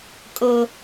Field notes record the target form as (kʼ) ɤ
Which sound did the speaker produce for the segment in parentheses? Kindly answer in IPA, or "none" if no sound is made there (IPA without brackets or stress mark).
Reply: kʼ